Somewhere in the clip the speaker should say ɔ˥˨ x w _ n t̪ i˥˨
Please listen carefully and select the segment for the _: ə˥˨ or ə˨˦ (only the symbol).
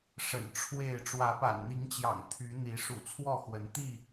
ə˨˦